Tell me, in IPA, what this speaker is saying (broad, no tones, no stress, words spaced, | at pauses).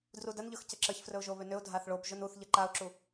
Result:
drudənʎɵx cəǁəçfrɵʊ̯ʒo βʏnʏʊ̯ dʱaθɭob ʒɵnuθʎə ǃaʊ̯ǁu